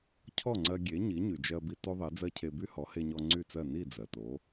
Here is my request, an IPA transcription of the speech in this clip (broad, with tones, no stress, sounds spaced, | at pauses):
cʰ ɔ˥˩ ŋ͡ǀ ɜ˧ ɡʲ e˩˥ ɲ i˩˥ ɲ y˩ d͡ʒ ɜ˧ b i˧ t o˥ ðˤ i˩˥ d͡z ɜ˥ cʰ e˧ b y˥ h ɔ˩˥ h e˧ ɲ ɔ˧ ŋ͡ǀ y˥˩ t͡s ɜ˥˩ n i˥˩ d͡z ɜ˩ t o˩˥